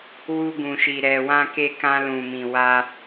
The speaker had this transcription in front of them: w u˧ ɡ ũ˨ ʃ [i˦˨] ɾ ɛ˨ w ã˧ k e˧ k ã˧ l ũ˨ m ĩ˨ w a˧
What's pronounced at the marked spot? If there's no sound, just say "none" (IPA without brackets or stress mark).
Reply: i˨